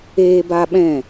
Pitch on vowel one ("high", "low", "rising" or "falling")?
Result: high